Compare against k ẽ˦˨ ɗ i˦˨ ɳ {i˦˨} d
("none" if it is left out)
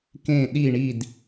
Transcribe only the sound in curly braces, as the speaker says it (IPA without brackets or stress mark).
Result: i˦˨